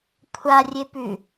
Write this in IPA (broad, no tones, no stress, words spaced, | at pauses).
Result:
kʷʰarʲepʉ